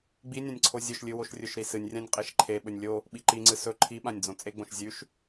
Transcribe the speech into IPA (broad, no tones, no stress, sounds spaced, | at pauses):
ɡ͡b i nʲ ã nʲ ǀʰ o zʲ ɵ ʃ lʲ ɨ w o ʃ rʲ ɵ ʃ ɾ i s ɨ nʲ rʲ ã nʲ qʼ e ʃ ǃʰ e ɓ ɵ nʲ lʲ o | ɓ i ǃ i ŋ͡ǀ ɨ s ɵ ǃʰ i ɓ ã nʲ d͡z õ t͡sʼ e ɡ͡b õ ʃ zʲ ʉ ʃ